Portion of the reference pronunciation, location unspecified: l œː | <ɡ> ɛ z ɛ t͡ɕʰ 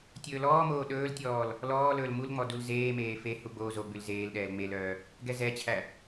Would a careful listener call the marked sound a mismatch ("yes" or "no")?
no